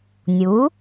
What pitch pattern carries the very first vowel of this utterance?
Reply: rising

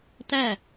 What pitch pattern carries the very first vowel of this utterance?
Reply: falling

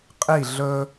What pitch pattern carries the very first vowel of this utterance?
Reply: falling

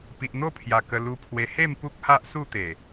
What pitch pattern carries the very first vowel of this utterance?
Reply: low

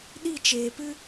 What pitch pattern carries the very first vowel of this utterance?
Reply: falling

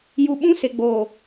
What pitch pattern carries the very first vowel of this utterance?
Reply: low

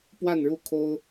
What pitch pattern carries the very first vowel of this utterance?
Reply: falling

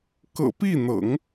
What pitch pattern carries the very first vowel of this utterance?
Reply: low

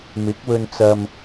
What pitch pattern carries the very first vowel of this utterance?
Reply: rising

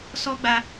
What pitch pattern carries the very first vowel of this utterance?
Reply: high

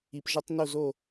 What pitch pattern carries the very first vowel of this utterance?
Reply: low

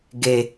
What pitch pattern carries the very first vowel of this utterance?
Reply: low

